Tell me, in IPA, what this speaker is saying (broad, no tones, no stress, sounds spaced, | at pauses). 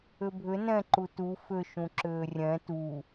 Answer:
ʏ bʱ ʏ n ɛ̃ ǃ u t u f ʏ ʃ ũ ǁ ʏː rʲ ɛ̃ t u